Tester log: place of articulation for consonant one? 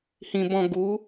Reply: glottal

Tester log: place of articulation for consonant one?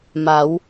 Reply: labial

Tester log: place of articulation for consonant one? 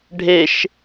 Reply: retroflex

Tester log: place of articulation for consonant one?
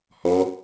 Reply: glottal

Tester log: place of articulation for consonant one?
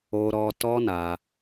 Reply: alveolar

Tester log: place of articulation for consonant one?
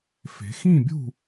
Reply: labial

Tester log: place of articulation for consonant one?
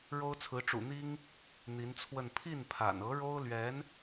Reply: retroflex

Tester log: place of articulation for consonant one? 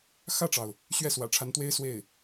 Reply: velar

